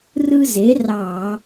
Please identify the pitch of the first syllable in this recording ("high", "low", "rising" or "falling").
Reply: high